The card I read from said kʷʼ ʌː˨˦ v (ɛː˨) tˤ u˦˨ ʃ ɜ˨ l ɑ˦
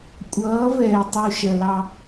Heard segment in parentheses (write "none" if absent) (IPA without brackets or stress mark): ɛː˨